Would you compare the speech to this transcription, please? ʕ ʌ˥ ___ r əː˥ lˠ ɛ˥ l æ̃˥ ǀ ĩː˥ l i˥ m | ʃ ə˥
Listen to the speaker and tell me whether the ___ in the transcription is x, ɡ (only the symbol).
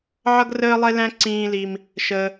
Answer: ɡ